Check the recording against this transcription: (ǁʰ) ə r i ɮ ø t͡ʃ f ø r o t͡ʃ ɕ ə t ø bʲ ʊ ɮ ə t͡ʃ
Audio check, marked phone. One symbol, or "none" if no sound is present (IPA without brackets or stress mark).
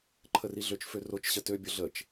ǃʰ